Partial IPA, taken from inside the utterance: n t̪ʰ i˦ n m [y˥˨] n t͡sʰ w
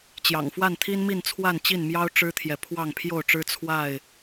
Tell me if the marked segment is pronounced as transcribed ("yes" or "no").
no